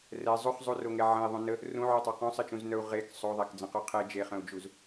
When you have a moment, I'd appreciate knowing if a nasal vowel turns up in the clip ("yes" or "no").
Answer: yes